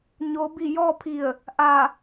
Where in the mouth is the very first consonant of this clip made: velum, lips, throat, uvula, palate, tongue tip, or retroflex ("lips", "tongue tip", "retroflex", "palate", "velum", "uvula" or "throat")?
palate